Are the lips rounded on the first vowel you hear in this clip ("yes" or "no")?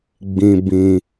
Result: no